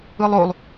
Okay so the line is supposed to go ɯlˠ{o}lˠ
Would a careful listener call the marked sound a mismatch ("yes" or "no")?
no